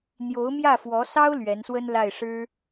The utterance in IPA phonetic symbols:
n̪jo˧˥ʊ̯mjä˥˩fwɔ˧˥sɑ˥ʊ̯ lɥɛ˧˥nswə˥nla˥˩ɪ̯ ʂɻ̩˥

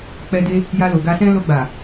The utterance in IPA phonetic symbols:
k͡pɛ˧de˧ | ja˧lo˨ɡa˧sɛ̃˦ lo˧ɡ͡ba˨

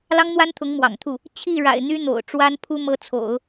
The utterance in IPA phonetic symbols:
lɑ˥ŋn̪wa˥nt̪ʰʊ˧˥ŋ mwɑ̰˨˩ŋt̪ʰu˥˩ | t͡ɕʰi˥˩ɻa̰˨˩ɪ̯ n̪y˥n̪o̰˨˩ʊ̯ ʈ͡ʂwa˥npʰu˥ mɤ˥t͡sʰo̰˨˩˦ʊ̯

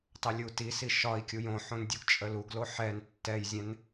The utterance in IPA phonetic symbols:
tˤəlʲutisi ʃɒi̯kʲuj õħõn dʲuɡt͡ʃʼəluɡlo ħɛn tːɛjzʲɛ̃n

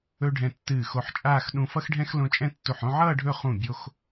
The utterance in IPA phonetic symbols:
ɵ˧ ɖʱɛ̃˧tːɨː˧˩xo˧˩ħt͡ʃʼaː˥˧x ɗũ˧fʌ˥xɖʱɛ̃˥x lõ˧t͡ʃʼɛ̃˥˧tːu˧˩ħ õ˥˧ʕʌː˥˧ ɖʱɵ˥˧ χũ˧˩bʲo˧x

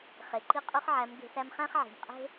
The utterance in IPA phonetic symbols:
χe˨ ǃi˧ qʼʉ˦χʕæ˨˦mɡe̤˧sæ˦m χæ̃˦χʕi̤˨mqʼe̤˦

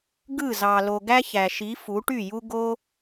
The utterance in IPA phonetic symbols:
ɡɯ˦˨zɑ˨ lo˨ ɡæ˦çæ˨ ʃi˨˦ fu˨˦ʈy˦˨ju˦ ɡo˦

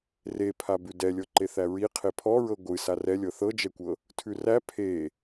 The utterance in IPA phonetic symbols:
repʰabʉ dɛlʲɤǃeθæ ɹi qʰepʰɔɹɤ ɡʷɨ sarɛlʲɤ θɤd͡ʒɛkʷɤ | tʰʉræ pʰe

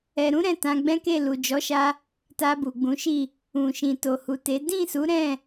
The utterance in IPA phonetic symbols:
ɛ˨ɾũ˨˦ ɾɛ̃˦˨tã˧ɡ͡bɛ̃˦ke˦˨ lu˨d͡ʒɔ˨˦ʃa˧ | ta˧bu˨ɡ͡bũ˨˦ʃi˦˨ | ũ˨ʃĩ˨ to˨hu˨te˨˦ dĩ˦˨su˨˦ ɾɛ̃˦˨

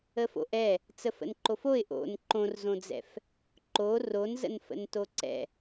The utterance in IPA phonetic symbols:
əfo̰ʔɛ | t͡səfə̰nǃofoɪ̯ ʔo̰n ǃõrzõd͡zɛ̰f | ǃo ronzə̰n fə̰ntoǀɛ̰

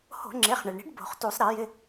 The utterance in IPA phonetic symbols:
ho̤˧˩˧ŋ͡ǁe˩˧˩χɳɪ˩ɭɳi̤˨˥ɖ bo̤˧˩˧χtu˧˩˧sˤ ɾe˧˩˧jɪ˩˧˩

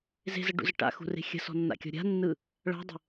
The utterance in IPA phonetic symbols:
ze̤zəɖṵzə ʈa̰xṳre̤ xʲə̤sɔ̤nːa̰kʲɔ̤ ɾʲa̤nːɯ | ɭa̤dˤə̤

